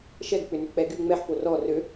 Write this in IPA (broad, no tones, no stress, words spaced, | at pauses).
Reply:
ʃɛɡk͡pʏnʏk͡pɛ ɡy ŋ͡mɛħpo rɔ rø